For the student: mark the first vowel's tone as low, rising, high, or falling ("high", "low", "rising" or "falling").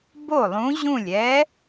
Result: falling